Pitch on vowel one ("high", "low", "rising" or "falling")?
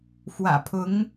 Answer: low